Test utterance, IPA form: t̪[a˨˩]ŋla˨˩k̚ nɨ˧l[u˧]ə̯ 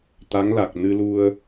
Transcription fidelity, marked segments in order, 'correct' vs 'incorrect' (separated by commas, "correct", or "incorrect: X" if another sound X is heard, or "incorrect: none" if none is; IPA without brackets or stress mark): incorrect: a˧˥, correct